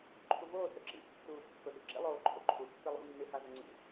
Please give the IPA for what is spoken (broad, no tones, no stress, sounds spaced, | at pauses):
ǃʰ u v oː θ ɵ ǁ ḭ tː uː pː ɵ ʔ ʉ ǁ ḭ lˠ oː ǃʰ o̰ ǃʰ u tː ɨ lˠ ṵ nː ɨ h a z o ŋ͡ǀ ḭ